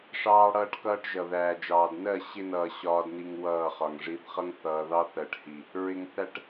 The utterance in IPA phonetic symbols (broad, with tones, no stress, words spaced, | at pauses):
ʂɑː˦ɽʌː˦ʈkʌː˦ʈʒʌ˨ ðæː˨d͡ʒɑː˨d nɜ˦˨ ɕɪ˦nʌː˨ ɕɒː˦dni˦ŋwʌː˦˨χɒ˨ŋ ʐi˨˦θχʌ˦ŋ θʌː˨ðɑ˦θɜ˨ʈhi˨ | ɹɪ˨ŋθæ˨ʈ